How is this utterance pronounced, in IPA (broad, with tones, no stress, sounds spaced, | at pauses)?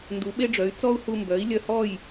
n d u˩˥ ɓ e˥ ɖ͡ʐ œ˩˥ y̯ t͡s ɔ˥ u̯ h u˧ m b œ˩˥ i̯ lʲ œ˧ h ɔ˥˩ j